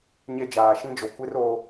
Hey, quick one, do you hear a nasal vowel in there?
yes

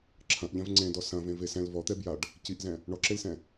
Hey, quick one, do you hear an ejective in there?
no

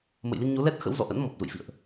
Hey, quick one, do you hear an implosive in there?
no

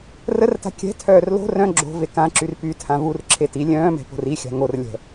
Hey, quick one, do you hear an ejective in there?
no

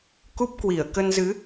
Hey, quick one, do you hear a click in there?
no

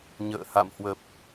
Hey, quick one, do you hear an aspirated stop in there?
no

